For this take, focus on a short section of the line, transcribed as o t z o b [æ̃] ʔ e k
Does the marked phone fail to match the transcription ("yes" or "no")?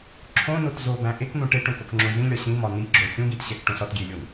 no